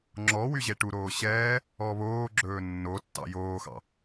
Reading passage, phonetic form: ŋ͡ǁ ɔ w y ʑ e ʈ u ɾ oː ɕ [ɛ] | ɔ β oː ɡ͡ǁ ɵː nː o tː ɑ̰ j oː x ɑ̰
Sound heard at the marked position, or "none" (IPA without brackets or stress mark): ɛː